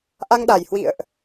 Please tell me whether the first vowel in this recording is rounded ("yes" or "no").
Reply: no